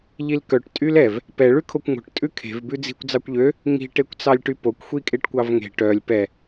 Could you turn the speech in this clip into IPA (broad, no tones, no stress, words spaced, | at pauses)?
ʎilkœʈ tʼylɛv | pɛ ɭʉkʰokʷŋo̤ʈ tʼʉkʰe̤v bʉd͡zi̤kʷ d͡zɑkʷʎø | ŋi̤ ʈekʷt͡sɑlʲʈypokʷ xʷikʼeʈkʷɑvŋe̤ ʈœlʲ pɛ